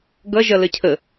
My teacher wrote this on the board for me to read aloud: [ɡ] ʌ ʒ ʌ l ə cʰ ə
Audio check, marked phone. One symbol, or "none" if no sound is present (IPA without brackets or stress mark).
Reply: ɡ